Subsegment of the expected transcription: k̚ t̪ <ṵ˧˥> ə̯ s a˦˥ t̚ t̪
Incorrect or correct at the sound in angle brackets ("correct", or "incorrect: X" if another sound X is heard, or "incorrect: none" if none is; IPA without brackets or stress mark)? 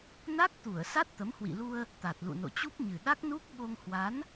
incorrect: u˧˩